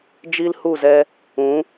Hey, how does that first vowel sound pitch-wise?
high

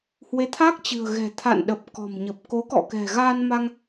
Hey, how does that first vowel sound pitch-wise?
rising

